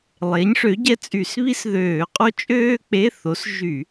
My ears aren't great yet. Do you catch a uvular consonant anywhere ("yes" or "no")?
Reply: yes